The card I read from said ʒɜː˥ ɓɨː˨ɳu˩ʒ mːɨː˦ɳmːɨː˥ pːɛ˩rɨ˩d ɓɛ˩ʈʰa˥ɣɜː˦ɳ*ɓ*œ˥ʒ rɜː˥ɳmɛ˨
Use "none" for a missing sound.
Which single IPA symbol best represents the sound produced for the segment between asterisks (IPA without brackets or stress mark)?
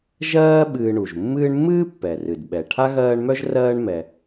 m